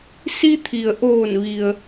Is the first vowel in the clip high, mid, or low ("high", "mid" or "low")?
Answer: high